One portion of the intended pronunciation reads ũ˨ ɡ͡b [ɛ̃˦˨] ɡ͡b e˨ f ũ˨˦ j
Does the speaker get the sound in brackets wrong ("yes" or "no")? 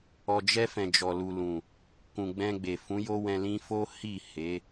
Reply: yes